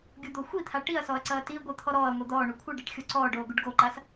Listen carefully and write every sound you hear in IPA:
ɡʲ u d̪ o xʷ i t̪ʰ a ʈ i ɐ̯ s ɔ ɐ̯ ǀ ɐː t i ɡʷ ɨ t̪ʰ ɔ ɾ ɔː ɐ̯ ŋʷ i d̪ ɔː ɳ u kʷʰ ɨ ɖ ɛ ʈ xʲ o ǀ ɔː ɖ oː ɡ u ɖ ɡ o ǃ a s

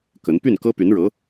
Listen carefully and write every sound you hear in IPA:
k ə˧˥ n p y˥˩ n k ɤ˥ p y˧˥ n ɻ ɤ˧˥

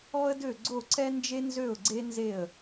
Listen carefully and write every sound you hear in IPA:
ɔ˥ ə̯ d ø˥˩ ɡ͡ǀ o˥˩ ǀ ɛ˥ n d͡ʒ e˥ n z ø˥˩ ʊ̯ ɡ͡ǀ e˥ n z e˥˩ ə̯

